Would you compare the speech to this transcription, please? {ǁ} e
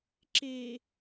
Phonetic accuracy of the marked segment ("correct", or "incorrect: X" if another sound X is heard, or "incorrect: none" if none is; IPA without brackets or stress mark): correct